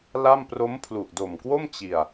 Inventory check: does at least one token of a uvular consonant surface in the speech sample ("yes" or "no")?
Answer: no